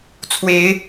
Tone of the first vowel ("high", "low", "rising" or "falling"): rising